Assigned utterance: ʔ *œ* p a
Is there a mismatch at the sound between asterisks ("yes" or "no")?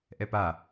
yes